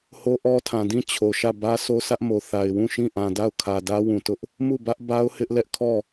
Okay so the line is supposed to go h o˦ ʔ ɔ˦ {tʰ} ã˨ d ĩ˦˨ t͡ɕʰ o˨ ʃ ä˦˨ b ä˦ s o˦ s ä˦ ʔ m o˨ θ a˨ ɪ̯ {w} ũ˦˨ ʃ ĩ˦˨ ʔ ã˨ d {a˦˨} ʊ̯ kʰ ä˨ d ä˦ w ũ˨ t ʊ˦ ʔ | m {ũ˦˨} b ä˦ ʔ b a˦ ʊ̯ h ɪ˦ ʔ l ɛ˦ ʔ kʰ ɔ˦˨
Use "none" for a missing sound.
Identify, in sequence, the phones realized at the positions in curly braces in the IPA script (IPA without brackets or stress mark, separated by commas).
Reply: tʰ, w, a˦˨, u˦˨